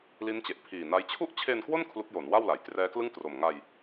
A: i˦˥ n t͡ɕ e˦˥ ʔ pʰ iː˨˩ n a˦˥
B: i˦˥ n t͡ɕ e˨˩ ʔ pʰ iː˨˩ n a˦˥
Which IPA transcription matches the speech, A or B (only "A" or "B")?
B